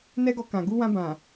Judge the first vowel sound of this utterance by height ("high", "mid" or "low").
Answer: mid